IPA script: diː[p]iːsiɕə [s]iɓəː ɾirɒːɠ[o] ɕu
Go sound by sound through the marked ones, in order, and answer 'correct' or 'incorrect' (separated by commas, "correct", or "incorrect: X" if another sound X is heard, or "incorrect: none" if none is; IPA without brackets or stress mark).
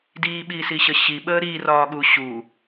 incorrect: ɓ, incorrect: ɕ, incorrect: u